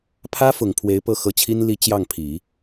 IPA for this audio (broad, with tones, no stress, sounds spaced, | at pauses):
pʰ ä˥ f ʊ˨˩ ŋ pʰ w e˧˥ ɪ̯ p ɤ˥˩ x ɤ˧˥ t͡ɕʰ i˥ n l i˥ t͡ɕ j ɑ˥˩ ŋ pʰ i˨˩˦